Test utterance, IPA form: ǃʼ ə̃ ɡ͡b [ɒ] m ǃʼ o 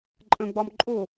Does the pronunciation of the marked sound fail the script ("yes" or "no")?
no